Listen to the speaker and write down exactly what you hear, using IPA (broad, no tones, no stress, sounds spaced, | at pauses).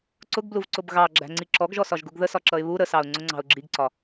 ǀ ʊ ɡ b l u v ǀ ʊ b ɣ ɑ ɡ͡ǁ æ̤ ŋ͡ǀ i ǁ ɔ ɡ ʒ ɔ s ɒ ʒ ɡ u ɡ ð ə s ɒ ǁ ʌ ɪ̯ β u ɾ ə s ɑ ʊ̯ ŋ͡ǀ ʊ ŋ͡ǀ ɑ̤ ʊ̯ ɡ͡ǁ i ɡ ǀ ɒ